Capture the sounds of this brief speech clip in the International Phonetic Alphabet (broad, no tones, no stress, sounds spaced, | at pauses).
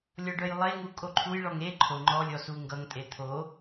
lʲ ɔ ɖ œ j lˠ e ŋ u kʼ o ǃʰ u j ɭ ɔ ŋ e ǃʰ o ŋ͡ǃ ɔ lʲ ɔ s u ŋ ɡ ʌ ŋ tʼ e t̪ʰ o